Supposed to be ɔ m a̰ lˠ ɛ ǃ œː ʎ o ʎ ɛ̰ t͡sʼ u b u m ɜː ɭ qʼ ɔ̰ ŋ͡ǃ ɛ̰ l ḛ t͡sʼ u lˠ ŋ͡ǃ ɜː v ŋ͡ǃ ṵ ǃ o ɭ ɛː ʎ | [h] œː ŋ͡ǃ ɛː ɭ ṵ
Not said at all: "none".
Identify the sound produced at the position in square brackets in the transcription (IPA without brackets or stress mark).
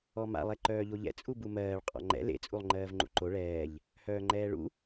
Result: h